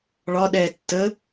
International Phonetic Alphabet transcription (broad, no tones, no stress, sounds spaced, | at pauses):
ɭ ɒ ɗ ɛː tː ə